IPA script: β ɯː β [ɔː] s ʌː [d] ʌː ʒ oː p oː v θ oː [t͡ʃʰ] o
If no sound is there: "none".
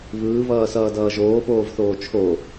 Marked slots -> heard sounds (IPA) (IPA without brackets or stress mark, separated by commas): ʌː, d, t͡ʃʰ